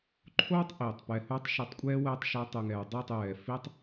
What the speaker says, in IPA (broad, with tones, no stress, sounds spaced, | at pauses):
ǃʰ oː˦ tˤ ʔ iː˨ tˤ p ɛ˧ h o˦ tˤ ʃ o˧ tˤ kʷʼ ɛː˦ w ɛː˧ tˤ ʃ a˧ tˤ u˨ ŋ ɛː˨ dˤ ɪː˦˨ tˤ j ɛː˨ f i˦ tˤ